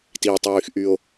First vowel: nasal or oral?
oral